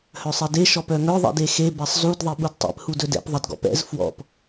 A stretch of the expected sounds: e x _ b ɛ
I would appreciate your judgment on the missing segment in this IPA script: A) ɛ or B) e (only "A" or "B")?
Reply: B